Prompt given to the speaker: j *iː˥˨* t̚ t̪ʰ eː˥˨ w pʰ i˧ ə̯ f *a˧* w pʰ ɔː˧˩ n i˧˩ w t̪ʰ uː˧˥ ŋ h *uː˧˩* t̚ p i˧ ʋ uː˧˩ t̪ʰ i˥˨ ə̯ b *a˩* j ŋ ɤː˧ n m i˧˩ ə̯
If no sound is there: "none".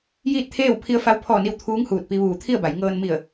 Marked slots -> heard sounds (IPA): iː˥˨, a˧, uː˧˩, a˩˧

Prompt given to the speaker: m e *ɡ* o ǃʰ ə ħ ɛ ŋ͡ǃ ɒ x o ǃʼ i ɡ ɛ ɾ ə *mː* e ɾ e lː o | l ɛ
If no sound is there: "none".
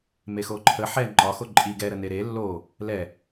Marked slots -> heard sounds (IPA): x, n

